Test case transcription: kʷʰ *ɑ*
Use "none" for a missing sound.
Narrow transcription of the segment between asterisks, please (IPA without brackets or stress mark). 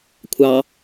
ɑ